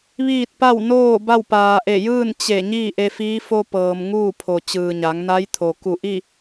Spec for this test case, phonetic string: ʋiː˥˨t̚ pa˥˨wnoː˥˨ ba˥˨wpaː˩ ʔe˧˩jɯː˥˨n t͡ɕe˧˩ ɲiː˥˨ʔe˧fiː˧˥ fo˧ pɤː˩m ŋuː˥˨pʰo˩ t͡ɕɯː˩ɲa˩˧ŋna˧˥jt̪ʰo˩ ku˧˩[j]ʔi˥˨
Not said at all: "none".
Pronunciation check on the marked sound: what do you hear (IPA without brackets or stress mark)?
none